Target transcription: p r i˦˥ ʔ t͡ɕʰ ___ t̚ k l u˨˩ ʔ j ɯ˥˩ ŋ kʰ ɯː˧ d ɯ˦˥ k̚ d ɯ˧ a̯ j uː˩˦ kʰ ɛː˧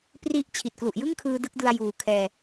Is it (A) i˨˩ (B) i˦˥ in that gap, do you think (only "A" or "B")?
A